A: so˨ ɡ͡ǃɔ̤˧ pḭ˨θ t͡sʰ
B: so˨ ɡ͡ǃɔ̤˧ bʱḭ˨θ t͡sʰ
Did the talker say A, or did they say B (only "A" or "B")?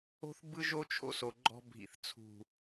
B